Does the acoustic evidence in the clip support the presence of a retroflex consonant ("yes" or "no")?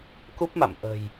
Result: no